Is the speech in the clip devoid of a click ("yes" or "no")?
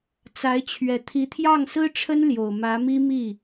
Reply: yes